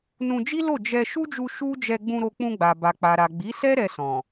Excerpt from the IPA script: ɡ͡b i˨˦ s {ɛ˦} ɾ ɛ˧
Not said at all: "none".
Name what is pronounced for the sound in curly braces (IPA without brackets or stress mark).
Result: ɛ˦